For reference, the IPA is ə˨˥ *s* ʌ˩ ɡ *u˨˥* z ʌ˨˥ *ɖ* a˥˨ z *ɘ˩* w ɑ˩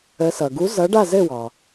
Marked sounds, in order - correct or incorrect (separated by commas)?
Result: correct, correct, correct, incorrect